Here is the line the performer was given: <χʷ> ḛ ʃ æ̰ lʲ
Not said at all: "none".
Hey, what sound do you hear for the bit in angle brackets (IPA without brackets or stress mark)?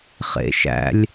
χ